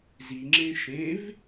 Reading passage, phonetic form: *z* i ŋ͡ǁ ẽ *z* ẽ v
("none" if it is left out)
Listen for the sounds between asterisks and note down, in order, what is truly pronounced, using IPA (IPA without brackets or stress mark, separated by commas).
z, ʃ